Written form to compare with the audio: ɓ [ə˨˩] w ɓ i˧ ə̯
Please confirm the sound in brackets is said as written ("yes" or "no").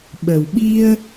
yes